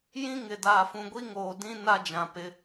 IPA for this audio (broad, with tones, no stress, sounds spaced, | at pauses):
j ĩ˦ ŋ ɪ˨ d aː˨ f ũ˨ ɡʷ i˦ ŋ oː˨ d ĩ˦ n a˦ d͡ʒ ã˨ p ɪ˨˦